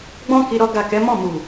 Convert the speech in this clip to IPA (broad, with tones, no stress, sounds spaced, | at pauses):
ɡ͡b ɔ̃˦ k i˧ ɾ ɔ˦ ɡ a˦˨ k ɛ˨˦ m ɔ̃˦˨ m u˨